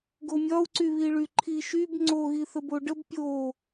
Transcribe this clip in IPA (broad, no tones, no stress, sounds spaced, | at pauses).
ɡ o mʲ ɒ u̯ ǀ y β i ɭ y ǃʰ i ʃ y b ŋ͡ǀ o ɣ i θ ə b o ɖ ə b pʲ o